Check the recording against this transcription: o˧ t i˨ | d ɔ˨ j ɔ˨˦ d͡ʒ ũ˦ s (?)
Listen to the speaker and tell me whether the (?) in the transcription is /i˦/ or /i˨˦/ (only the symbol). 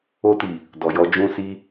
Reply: i˦